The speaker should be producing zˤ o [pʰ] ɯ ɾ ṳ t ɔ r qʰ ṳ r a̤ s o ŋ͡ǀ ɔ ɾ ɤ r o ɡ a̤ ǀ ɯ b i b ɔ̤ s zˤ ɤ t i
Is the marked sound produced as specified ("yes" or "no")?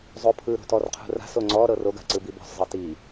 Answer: yes